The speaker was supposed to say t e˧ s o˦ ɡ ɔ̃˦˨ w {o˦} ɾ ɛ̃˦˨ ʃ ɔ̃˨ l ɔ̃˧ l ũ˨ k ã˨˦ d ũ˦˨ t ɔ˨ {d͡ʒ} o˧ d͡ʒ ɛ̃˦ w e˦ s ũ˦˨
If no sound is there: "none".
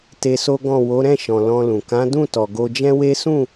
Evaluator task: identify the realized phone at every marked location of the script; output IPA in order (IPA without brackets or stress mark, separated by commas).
o˨˦, ɡ